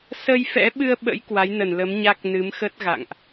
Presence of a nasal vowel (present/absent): absent